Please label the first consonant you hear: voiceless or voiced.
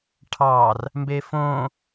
voiceless